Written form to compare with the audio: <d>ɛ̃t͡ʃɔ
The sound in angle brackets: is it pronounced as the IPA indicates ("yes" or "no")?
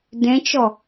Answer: yes